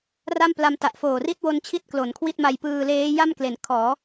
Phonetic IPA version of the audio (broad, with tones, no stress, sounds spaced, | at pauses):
r a˥˩ m p l a˧ m t a˨˩ ʔ f oː˨˩ r i˥˩ t̚ w o˧ n t͡ɕʰ i˦˥ t̚ k l o˩˦ n kʰ w i˥˩ t̚ m a˧ j p ɯː˧ l eː˦˥ j a˥˩ m k l e˩˦ n kʰ ɔː˩˦